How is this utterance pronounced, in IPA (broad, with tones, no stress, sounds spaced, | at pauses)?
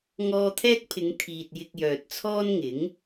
ŋ ɔː˧ t̪ʰ ɛː˥ k̚ pʰ ɪ˨˧ ŋ t̪ʰ iː˨ t̚ j ɪ˧ k̚ j œː˨ t̚ t͡sʰ ɔː˥ n ŋ ɪ˨˥ ŋ